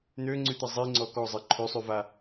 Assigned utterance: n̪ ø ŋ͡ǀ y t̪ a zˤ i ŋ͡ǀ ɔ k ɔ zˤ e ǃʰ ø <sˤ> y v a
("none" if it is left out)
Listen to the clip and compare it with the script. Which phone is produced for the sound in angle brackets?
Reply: sˤ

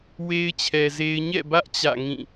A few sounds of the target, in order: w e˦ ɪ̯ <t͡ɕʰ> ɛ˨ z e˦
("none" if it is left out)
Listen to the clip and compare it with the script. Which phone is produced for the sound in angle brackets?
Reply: t͡ɕʰ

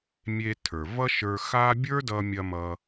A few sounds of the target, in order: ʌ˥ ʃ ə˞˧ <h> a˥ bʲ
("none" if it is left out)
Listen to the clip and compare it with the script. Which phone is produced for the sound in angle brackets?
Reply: x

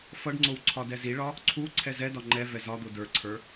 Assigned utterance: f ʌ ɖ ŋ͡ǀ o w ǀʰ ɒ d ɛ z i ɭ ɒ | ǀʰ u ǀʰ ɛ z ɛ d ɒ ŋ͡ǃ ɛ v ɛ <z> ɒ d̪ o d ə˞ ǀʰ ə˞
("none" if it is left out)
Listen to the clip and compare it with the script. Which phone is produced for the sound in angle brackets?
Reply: z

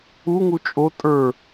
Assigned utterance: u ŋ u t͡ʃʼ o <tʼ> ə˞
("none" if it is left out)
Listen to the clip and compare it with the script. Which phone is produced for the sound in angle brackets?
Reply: tʼ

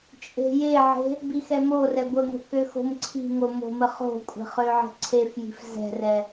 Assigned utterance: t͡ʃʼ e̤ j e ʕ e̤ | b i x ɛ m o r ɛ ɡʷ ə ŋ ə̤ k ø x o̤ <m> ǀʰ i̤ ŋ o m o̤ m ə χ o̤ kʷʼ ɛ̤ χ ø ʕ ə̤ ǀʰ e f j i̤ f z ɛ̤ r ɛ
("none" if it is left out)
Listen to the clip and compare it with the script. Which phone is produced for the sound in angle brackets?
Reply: m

